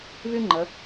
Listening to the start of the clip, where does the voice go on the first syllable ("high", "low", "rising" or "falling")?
high